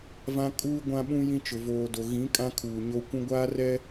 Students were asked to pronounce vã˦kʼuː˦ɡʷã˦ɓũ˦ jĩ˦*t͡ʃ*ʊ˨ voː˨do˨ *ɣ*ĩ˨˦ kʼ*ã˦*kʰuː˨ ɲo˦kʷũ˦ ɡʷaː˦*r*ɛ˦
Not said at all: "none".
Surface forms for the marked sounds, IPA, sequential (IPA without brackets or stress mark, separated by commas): t͡ʃ, ɣ, ã˦, r